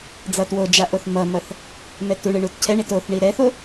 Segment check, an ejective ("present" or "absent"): absent